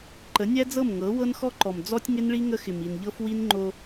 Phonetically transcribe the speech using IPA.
ǃ ə˨˦ nʲ æ˦ d͡z ɤ˦˨ m ŋ ɤ˨˦ w ɤ˦ n x ɔ˦ ǃ ɔ˨ m d͡z ɔ˦ tʲ ŋ ɪ˦ n ɭ i˦ ŋ ə˦ x ɪ˨ m i˨ n ʎ ɤ˦ f w i˦ n ŋ͡ǃ o˦

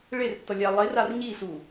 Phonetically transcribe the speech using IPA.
ɭ e r tː ʌ lʲ a lˠ e r a r ɲ i ɬ u

